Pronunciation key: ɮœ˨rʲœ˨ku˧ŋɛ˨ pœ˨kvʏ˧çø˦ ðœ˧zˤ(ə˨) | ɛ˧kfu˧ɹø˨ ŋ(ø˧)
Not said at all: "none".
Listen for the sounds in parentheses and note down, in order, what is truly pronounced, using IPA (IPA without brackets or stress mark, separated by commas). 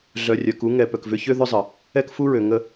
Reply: ə˨, ə˧